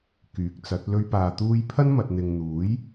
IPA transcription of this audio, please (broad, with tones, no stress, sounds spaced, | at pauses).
k yː˨˥ k̚ t͡s ɐ˨˥ t̚ l ɵ˧ ɥ p aː˨ t̪ uː˧ j pʰ ɐ˥ n m ɐ˨ t̚ n̪ ɪ˨ ŋ n̪ uː˨˥ j